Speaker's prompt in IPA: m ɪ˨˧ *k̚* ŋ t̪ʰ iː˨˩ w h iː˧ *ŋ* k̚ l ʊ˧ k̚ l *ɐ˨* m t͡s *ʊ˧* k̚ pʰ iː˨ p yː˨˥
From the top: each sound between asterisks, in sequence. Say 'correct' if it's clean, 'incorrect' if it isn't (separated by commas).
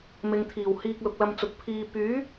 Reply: incorrect, incorrect, incorrect, incorrect